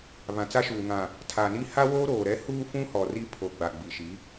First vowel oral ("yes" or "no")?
no